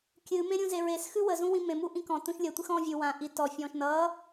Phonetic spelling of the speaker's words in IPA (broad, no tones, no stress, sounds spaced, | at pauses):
kʲ ɨ m ẽ ɾʲ ũ z e ɹ e s x ʉ w ə z ũ w ĩ m ẽ m u ʔ ĩ k ɔ̃ t ũ ʃ lʲ ə tʷ ɨ x ɔ̃ː vʲ ʉ w ã ʔ i t ɔ fʲ ɔ̃ː ʃ n ʌː